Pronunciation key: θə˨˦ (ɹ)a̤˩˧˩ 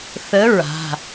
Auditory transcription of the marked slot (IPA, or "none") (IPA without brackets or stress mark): ɹ